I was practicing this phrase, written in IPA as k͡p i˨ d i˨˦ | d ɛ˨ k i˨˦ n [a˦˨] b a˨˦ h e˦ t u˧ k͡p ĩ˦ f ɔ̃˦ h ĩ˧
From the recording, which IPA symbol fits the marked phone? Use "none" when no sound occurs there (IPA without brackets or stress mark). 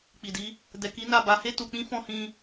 a˦˨